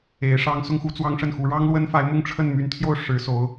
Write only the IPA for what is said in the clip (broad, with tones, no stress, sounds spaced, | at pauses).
e˧˥ ɪ̯ ʂ ɑ˥ ŋ s ʊ˥ ŋ x u˧˥ t͡s w ɑ˥ ŋ ʂ ə˥˩ n x u˧˥ ɻ ɑ˥ ŋ l w ə˥ n f a˧˥ ɪ̯ m ʊ˥˧ ŋ ʈ͡ʂʰ ə˥˩ n m y˧˥ n t̪ʰ j o˥˩ ʊ̯ ʂ ɻ̩˧˥ s o˧˥ ʊ̯